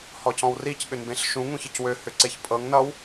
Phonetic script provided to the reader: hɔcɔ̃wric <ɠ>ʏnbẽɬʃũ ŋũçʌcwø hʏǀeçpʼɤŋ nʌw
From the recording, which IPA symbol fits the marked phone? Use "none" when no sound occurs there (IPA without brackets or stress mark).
ɠ